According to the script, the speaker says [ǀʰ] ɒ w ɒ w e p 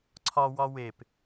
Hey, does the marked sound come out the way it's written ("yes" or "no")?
yes